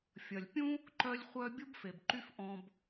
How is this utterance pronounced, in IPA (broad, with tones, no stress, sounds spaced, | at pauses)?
fʲ ɐ˩ lʲ pʲ ũ˥ | ǃ œ˦ lʲ χʷ œ˦ bʲ u˥ b f e˩ b ǃ y˦ f ʔ ɔ̃˨ b